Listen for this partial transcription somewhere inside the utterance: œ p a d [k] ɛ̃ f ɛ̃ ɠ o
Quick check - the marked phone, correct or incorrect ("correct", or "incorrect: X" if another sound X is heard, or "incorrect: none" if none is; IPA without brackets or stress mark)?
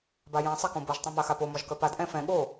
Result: incorrect: ʔ